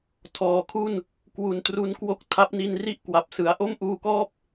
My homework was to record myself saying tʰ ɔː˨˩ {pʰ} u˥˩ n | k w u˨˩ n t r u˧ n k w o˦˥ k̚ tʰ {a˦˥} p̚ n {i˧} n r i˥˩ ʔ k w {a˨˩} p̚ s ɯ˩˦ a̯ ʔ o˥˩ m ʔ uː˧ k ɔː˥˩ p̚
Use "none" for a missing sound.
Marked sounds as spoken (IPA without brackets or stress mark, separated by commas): kʰ, a˦˥, i˧, a˨˩